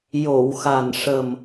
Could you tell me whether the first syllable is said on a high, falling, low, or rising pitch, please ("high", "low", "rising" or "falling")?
low